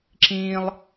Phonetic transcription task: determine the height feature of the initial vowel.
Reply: high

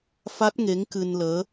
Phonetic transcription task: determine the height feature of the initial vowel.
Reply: low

